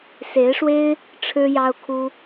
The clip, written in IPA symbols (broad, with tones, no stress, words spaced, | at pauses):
se˧˥ɪ̯ʂwe˥ɪ̯ | ʈ͡ʂʰɻ̩˥ jɑ˥ʊ̯kʰu˥